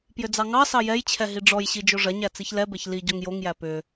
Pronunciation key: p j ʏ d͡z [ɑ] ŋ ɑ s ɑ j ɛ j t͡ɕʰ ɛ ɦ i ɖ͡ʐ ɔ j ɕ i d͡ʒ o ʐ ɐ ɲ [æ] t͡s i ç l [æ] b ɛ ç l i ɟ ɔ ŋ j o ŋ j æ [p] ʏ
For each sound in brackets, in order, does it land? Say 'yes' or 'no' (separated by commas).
yes, yes, no, yes